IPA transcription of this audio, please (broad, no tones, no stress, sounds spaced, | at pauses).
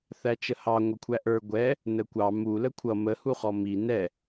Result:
θ æ t͡ʃ ə h ɑ ŋʷ ʌ kʷʰ æ ʔ ə˞ ɡʷ ɛ | n ə kʷ ɑ m u l ə kʷʰ ʌ m ə h u χ ɔ m i n ɛ